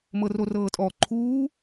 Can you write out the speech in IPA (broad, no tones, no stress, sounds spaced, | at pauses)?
m ɤ r o r ɤː tʼ ɔ ǃʰ uː